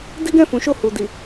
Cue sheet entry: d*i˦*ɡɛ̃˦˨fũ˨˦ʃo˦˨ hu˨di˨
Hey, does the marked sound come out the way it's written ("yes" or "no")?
yes